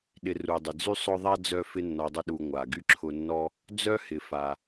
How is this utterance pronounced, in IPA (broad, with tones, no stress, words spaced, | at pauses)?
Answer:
ɗɪ˨ ru˩dˤɪ˩d͡zy˥ sˤʊ˦ðˤa˥ d͡zœ˥fɪ˥ nːɔ˨dˤʊ˦ɗu˨ ŋʷa˩ ɡy˥ǁʰʊ˦nːɔ˥ | d͡zœ˥hɪ˩fa˩